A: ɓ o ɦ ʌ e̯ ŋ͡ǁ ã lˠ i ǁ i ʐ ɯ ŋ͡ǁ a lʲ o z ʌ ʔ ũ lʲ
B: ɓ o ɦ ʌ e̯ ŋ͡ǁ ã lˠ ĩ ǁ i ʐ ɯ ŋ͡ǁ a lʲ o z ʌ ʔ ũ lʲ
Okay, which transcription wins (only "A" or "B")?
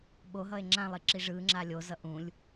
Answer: A